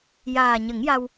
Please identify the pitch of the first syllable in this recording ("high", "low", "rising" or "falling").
low